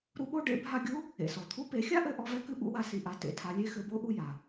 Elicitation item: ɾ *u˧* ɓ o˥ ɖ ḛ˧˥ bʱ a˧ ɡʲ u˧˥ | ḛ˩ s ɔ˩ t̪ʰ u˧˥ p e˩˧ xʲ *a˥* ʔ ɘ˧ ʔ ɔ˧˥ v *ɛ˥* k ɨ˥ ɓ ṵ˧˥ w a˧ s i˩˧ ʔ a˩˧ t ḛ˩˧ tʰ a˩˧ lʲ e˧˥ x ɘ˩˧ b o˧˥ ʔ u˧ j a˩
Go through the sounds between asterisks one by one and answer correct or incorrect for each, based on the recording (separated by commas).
correct, correct, correct